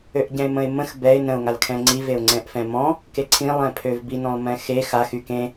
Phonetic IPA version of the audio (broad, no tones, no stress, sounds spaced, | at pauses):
ø ʔ ɟ ɛ̃ ɪ̯ m ə̃ ɪ̯ m ə̃ x b ɛ ɪ̯ n ə̃ ʊ̯ ŋ a l kʰ ɛ̃ ŋ͡ǀ i v e ʊ̯ ŋ͡ǀ ɛ̃ ʔ f ɛ̃ m ɔ̃ | k e ǀʰ ĩ lˠ ɛ̃ pʰ ø v b i n ɔ̃ lˠ m ɛ̃ x e x a x y k ẽ